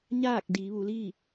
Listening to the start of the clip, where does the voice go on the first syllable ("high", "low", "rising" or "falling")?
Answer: falling